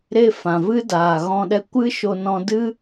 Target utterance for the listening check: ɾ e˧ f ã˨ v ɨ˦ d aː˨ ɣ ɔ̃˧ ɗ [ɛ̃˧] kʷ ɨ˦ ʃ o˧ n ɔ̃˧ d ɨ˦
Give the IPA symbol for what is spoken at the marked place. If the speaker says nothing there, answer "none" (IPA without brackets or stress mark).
ɛ˧